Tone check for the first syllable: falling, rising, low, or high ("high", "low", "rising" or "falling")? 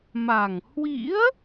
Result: low